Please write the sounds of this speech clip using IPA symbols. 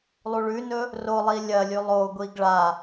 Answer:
lˠuɭʉnɵ | rolˠi lʲɐlʲʉ lˠoɡʷiɡ ɭa

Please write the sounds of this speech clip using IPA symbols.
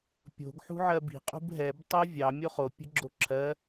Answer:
pʲo̤ɡ ħṳʕɜbi̤ qʼṳbɦɛb tˤɜvʲɑ mʲoχo pʲə̤ɡ͡ǁoǁʰɜ

